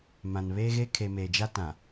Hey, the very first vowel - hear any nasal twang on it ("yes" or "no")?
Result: yes